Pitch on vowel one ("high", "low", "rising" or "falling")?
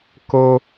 high